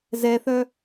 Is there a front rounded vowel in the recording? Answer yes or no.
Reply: yes